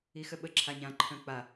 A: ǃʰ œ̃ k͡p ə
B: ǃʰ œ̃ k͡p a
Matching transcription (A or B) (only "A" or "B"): B